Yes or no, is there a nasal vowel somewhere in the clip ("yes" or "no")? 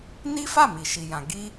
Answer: yes